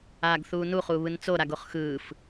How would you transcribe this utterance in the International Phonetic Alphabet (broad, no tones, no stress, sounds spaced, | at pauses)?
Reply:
aː ɡ θ uː n u χ uː β ɯ n t͡s o ɾ a ɡ o χ x ɯː f